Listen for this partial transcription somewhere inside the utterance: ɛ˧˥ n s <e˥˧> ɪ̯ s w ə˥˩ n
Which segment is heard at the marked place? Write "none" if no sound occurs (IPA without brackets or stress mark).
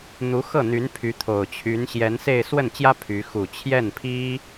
e˥˧